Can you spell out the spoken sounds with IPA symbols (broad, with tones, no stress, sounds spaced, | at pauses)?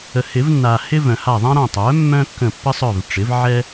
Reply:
ə˨ h ɪ˨˩˦ v nː a˨ h ɪ˥ v œ̃˨ h a˦˨ ðˤ ã˥ ɾ ã˦˨ tˤ œ˩˥ mː œ̃˥ kː ə̃˦˨ pː ə˥ sˤ œ˦˨ v ʈ͡ʂ ɪ˩˥ v ʕ ɛ˥